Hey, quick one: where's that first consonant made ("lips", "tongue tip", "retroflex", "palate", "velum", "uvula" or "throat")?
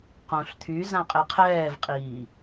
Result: uvula